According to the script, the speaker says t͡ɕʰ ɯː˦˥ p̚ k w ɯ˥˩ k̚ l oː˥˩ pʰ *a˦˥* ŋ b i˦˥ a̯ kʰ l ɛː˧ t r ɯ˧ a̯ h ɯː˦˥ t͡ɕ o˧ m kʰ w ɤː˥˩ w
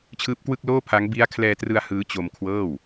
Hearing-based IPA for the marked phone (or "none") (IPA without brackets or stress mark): a˦˥